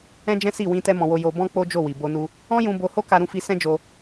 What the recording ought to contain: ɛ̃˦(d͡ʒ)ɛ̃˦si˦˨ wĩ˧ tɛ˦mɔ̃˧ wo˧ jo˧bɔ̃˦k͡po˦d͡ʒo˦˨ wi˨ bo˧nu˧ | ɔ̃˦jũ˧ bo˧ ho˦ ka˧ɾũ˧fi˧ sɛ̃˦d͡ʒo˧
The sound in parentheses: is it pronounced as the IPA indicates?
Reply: yes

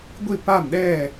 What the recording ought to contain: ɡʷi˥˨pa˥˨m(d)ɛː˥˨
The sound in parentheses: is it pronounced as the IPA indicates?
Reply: no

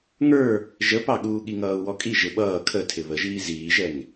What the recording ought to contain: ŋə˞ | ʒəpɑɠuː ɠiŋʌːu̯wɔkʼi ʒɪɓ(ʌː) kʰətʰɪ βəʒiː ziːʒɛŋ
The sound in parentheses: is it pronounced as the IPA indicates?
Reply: yes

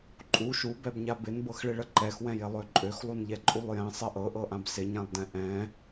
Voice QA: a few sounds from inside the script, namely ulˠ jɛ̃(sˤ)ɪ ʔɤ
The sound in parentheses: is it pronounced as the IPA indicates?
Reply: yes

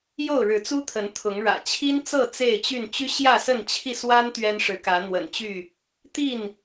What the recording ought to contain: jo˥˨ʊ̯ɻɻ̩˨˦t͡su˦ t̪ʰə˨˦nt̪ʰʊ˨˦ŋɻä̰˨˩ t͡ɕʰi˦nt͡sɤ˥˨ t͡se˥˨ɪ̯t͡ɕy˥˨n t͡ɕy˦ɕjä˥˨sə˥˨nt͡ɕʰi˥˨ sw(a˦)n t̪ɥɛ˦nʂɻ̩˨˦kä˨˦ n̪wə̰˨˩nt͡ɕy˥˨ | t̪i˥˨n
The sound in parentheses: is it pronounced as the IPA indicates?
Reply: yes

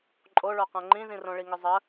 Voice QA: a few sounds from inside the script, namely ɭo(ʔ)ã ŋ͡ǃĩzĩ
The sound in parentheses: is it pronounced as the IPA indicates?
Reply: no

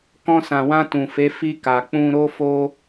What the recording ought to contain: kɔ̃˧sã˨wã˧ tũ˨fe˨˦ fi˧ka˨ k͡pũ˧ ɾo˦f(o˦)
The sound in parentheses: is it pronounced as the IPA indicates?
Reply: yes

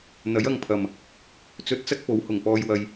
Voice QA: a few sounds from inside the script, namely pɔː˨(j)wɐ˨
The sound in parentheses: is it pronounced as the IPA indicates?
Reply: yes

